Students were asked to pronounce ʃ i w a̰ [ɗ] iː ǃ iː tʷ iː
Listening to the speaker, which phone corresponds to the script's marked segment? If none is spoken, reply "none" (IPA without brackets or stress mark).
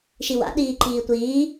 ɗ